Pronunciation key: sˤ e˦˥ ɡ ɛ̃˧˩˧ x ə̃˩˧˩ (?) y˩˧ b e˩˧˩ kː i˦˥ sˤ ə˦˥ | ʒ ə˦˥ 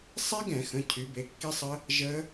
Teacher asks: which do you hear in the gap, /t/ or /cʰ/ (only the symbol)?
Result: cʰ